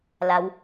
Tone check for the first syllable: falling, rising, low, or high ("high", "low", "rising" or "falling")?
rising